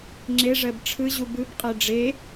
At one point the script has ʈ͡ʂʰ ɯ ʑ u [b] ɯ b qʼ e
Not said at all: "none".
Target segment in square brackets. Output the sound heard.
b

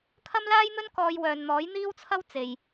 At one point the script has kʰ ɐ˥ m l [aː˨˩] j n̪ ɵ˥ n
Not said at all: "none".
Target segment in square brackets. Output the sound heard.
aː˥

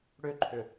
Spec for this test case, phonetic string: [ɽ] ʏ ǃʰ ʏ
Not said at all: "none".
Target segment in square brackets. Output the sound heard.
ɽ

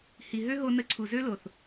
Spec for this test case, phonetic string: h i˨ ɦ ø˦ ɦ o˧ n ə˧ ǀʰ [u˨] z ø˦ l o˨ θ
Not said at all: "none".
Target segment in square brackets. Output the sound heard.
u˨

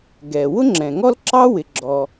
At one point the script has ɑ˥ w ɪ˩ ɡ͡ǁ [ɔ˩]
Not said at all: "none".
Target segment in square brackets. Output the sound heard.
ɔ˩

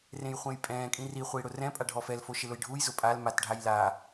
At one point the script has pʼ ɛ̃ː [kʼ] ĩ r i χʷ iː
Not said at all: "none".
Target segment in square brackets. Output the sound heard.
kʼ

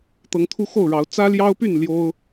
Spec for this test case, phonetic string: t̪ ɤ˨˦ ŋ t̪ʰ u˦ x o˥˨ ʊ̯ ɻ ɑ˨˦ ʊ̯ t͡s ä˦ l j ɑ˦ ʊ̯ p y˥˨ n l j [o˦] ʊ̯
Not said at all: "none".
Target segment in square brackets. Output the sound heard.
o˦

